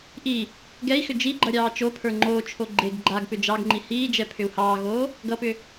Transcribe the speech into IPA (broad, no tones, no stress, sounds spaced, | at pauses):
ʔ i | ɡ ɛ i̯ x ʏ d͡ʒ i ɡ͡ǃ ʌ ɾʲ ɑː t͡ʃ o pʰ ə˞ ŋ͡ǃ oː t͡ʃʰ o ɡ͡ǃ e ɡ ɡ͡ǃ a ɡ p ʏ d͡ʒ ɑ ɡ ŋ͡ǃ i h iː d͡ʒ ɛ pʰ ʏ u̯ h ɑː ɣ oː | ɡ ʌ p ʏ